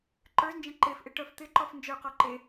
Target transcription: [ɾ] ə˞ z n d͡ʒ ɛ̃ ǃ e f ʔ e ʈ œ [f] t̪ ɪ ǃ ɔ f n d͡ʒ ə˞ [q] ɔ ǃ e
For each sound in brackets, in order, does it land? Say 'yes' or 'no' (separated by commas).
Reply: no, yes, yes